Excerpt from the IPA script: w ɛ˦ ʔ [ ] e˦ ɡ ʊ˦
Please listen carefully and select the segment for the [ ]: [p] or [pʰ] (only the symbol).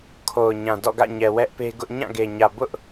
p